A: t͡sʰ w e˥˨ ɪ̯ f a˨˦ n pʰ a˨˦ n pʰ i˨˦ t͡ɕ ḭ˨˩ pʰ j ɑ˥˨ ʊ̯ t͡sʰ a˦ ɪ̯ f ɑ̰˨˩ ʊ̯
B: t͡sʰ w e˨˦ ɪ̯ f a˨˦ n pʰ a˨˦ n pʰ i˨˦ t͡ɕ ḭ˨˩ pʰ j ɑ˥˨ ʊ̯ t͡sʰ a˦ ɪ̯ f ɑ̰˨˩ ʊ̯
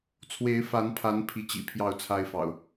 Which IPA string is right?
B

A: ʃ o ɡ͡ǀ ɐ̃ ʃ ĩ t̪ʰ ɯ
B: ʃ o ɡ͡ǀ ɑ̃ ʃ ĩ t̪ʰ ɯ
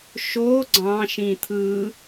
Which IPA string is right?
B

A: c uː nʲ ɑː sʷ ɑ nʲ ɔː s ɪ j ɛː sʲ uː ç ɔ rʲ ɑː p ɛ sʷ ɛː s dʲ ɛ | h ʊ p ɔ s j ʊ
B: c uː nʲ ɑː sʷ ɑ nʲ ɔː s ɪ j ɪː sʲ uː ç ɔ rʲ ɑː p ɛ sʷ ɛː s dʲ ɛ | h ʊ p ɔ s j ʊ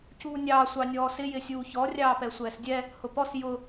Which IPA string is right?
B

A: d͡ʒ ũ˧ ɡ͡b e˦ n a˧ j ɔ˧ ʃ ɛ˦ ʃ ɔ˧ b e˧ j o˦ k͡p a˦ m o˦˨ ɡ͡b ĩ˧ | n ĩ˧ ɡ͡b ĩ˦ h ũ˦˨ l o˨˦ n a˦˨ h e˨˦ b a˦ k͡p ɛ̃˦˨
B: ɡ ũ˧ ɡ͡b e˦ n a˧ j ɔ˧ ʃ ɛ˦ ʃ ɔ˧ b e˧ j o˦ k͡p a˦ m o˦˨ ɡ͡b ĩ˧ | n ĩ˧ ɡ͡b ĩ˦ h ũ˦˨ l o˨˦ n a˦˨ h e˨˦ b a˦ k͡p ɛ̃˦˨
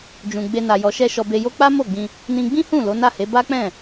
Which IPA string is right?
A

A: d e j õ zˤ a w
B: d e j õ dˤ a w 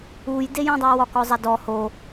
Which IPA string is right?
B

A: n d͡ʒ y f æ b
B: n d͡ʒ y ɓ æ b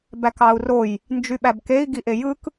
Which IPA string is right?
B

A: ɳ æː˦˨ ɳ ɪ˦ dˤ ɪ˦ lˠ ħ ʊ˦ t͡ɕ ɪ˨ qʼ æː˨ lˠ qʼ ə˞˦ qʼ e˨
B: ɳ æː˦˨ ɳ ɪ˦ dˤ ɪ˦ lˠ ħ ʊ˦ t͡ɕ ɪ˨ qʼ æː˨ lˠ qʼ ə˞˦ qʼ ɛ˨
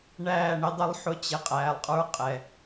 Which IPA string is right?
B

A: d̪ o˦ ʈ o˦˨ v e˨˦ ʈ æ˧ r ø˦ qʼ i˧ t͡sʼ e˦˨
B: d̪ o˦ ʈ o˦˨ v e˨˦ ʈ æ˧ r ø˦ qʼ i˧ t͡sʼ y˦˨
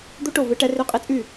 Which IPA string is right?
B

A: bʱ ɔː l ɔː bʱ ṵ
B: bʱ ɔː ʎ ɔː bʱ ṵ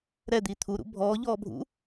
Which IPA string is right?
B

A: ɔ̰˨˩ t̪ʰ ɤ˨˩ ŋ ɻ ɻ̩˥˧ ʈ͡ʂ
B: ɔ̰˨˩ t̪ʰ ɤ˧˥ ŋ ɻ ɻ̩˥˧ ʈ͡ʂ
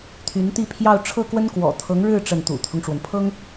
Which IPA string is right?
B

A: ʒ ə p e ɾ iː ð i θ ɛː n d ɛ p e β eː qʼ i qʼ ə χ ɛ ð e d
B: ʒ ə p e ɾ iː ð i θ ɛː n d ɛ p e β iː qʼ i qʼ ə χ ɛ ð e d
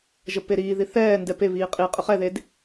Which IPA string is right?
B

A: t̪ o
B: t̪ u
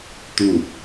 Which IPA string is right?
B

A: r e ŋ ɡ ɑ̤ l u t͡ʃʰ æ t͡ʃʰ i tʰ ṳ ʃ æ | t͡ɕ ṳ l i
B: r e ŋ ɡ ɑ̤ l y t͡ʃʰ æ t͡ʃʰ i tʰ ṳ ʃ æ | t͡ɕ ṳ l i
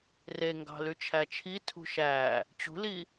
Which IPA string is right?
B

